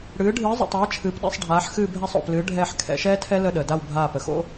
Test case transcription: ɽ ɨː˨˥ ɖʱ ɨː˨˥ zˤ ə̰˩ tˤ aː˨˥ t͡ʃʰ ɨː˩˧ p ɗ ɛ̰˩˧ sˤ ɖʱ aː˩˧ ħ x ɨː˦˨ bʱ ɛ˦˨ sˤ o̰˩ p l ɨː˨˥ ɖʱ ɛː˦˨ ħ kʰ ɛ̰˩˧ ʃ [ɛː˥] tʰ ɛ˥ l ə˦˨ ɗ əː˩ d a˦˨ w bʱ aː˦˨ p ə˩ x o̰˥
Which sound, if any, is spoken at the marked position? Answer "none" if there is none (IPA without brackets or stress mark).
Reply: ɛː˥